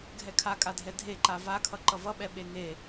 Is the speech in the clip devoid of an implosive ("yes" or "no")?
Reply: no